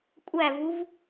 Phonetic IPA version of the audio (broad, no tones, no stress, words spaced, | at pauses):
kʷʼævuv